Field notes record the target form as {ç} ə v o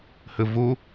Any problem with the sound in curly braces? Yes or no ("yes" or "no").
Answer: yes